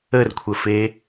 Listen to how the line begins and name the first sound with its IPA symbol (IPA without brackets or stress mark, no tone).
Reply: ə